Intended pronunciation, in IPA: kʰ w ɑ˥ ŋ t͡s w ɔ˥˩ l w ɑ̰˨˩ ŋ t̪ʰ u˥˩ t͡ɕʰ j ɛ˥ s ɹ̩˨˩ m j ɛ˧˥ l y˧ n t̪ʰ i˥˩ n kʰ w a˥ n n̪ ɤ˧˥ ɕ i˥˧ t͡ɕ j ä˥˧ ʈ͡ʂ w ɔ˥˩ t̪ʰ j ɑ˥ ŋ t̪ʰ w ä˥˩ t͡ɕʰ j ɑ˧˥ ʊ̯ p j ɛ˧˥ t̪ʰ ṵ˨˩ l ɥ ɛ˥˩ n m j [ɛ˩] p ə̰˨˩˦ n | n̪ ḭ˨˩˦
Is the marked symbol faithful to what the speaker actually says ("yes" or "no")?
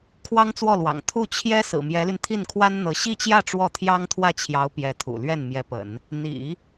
no